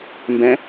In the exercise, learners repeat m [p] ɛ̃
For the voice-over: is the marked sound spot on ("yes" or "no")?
no